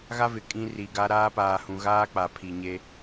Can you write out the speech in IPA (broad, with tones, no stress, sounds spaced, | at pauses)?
ɣ a˦ v ɪ˨ kʼ ĩ˦ r i˨ ɡ a˦ ɾ aː˦ p aː˨ h ũ˨ ɣ aː˦ k͡p a˨ pʰ i˨ ɲ e˦